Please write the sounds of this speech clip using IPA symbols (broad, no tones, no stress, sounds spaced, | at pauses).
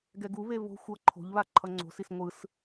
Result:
ɡ ɛ ɡ u β e β o̤ xʷ ʌ ǃʰ o̤ ʎ β a ǃʰ ʌ ŋ͡ǀ o̤ s i s ŋʷ ɯ s